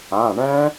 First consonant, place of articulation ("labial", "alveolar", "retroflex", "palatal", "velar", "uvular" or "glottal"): retroflex